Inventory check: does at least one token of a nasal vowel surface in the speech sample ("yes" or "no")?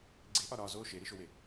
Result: no